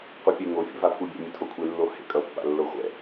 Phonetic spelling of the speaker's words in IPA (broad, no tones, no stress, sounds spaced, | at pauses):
qʷ i pʲ e ŋ o fʲ ɛ̰ v a pʰ u bʲ ḛ mʲ ɯ tʰ o kʷʰ e lː o h ḛ kʼ ʌ pː a̰ lː o χʷ ɛ̰